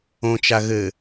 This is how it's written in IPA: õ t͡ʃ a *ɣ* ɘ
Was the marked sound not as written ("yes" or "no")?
no